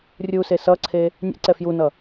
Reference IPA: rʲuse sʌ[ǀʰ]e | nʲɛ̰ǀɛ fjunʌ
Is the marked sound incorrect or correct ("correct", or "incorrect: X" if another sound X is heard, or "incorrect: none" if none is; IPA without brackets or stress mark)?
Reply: correct